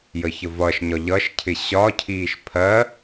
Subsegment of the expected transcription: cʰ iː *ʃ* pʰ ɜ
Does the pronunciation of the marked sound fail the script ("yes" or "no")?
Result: no